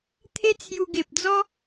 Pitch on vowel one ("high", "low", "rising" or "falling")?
high